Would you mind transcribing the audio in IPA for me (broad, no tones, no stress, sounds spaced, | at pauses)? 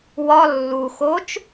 w ɒ lː u x o t͡ʃ